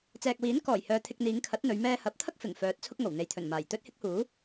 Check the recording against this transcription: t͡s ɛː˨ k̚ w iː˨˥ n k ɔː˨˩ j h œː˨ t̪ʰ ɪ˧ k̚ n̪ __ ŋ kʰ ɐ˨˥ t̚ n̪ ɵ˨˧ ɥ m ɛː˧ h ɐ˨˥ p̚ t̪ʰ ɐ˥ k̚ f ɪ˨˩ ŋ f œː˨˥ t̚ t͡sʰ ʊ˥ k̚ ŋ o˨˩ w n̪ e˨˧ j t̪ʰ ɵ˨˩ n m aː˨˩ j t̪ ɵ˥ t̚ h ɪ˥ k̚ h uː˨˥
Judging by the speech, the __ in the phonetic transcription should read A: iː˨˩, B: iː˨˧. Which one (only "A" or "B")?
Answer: B